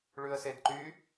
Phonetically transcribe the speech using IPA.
ɭ ʉ ə̯ s e d ǃ y

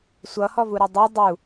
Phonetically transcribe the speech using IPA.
sʷ ʌ h ɔ v u ɾ ʌ dˤ u dˤ u

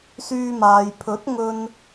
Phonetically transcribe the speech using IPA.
s yː˧ m aː˨ j pʰ ɵ˨˥ t̚ ŋ ɵ˧ n

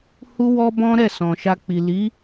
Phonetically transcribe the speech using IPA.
h u˦ w ɔ˦ b ɔ̃˦ ɾ ɛ˦˨ s ɔ̃˨ ʃ a˧ k͡p i˨ l i˨˦

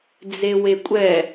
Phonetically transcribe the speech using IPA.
d͡z e w e kʷʼ ɛ

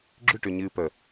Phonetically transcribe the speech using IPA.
ɡ͡ǁ ʏ ʈ ʏ ɲ ɨː p ə

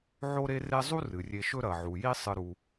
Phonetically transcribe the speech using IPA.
ʕ o˦ ɾ e˦ r e˦ zˤ u˥ r ɨ˩ rʲ e˨ ʃ ɵ˦ ɾ ɐ˩ ʕ u˩ j i˦ sˤ ɨ˨ ɾ u˩

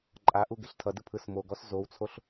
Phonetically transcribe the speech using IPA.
ǃʼ a ʔ u ɡ e ɬ tʰ ʌ d ɯ pʰ ɯ s m o ɡ ɔ s z o w t͡sʰ o ɬ

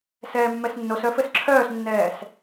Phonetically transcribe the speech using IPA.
s ɛː mː ɛ s nː o s œ f ɘ s ǁʰ œː s nː ɛː s

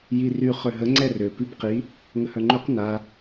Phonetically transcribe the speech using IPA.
j i r y χ ø ɦ ə ŋ͡ǀ ɛ r ø p i b q i | ŋ ə h œ ŋ͡ǃ ø q n a

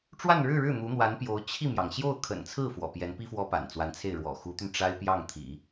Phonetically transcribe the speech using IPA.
ʈ͡ʂ w a˥˧ n ɻ ɻ̩˥˧ ɻ ɻ̩˥˩ n̪ u˧˥ n̪ w a˧˥ n p j o˧˥ ʊ̯ t͡ɕʰ i˥˩ m j ɑ˩ ŋ ɕ j o˥˩ ʊ̯ kʰ ə̰˨˩ n t͡sʰ ɹ̩˥˩ f w ɔ̰˨˩ p j ɛ˧˥ n p i˥ f w ɔ˥ p a̰˨˩ n t͡s w a˧˥ n t͡sʰ e˥˩ ɪ̯ ɻ w ɔ̰˨˩ x u˧˥ t̪ y˧ n ʈ͡ʂ a˥ ɪ̯ p j ɑ˥˩ ŋ t̪ʰ ḭ˨˩˦

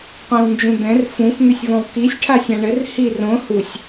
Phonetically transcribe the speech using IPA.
qʷ ɛ̃ w n d͡ʒ ũ d̪ ɛ̃ r f ũ f n̪ ʏ sʲ v ɔ̃ w k i sʲ ʈʰ a sʲ ã ɳ ɘ r h i r õ h u sʲ

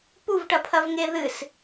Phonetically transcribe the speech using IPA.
p u v ʈ ɐ pʰ ɐ v ŋ e ð ɨ s

